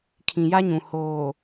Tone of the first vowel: low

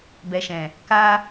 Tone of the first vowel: low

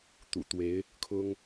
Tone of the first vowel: low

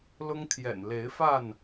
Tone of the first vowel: high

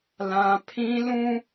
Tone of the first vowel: high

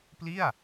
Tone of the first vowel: falling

